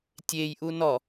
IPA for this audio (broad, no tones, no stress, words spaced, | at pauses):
tʲejʔu nɔ